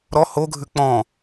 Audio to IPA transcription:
ɾ ɔ h o ɡʱ ʉ k͡p ɔ̃

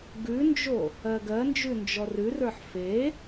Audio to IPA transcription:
ɡ ʉ n d͡ʒ o | ɜ ɡ ɜ n d͡ʒ ʉ n d͡ʒ ɔ r ʉ r ə˞ ħ f e

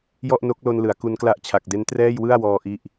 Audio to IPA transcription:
j ɔ˥˩ ʔ n o˦˥ k̚ l o˧ n l ɯ˩˦ a̯ k u˧ n k l a˥˩ ʔ t͡ɕʰ a˨˩ k̚ d e˦˥ n t r ɛː˥˩ j w ɯ˥˩ a̯ w ɔː˧ ʔ i˥˩ ʔ

